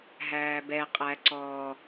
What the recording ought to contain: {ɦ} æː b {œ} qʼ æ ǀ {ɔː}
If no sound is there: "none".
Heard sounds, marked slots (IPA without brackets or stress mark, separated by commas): ɦ, ɛ, ɔː